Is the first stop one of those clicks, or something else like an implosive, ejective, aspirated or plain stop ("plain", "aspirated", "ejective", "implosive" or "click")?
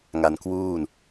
plain